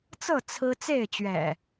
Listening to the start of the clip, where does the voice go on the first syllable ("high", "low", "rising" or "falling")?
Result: falling